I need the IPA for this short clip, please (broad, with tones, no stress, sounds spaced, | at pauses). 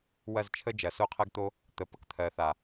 w ɐ˦˨ z t͡ʃʰ ə˦ d͡ʒ ɐ˨ s o˦ qʰ ɜ˦ ɡ t̪ o˦ | t̪ ə˨ p ə˦ k t̪ʰ ɜ˨ θ a˨